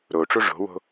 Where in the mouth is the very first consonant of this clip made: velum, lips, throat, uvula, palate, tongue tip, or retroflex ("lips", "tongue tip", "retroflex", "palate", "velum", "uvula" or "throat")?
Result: tongue tip